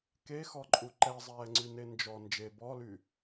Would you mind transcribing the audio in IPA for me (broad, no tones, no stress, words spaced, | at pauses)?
kexɔǃʼu ǃɛzˤɛːŋ͡ǀyne nd͡ʒɔ nd͡ʒe bɔly